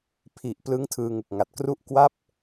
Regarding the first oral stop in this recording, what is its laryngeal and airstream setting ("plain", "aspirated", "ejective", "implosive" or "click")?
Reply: aspirated